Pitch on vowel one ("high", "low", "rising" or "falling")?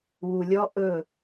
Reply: low